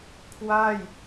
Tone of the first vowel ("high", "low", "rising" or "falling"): falling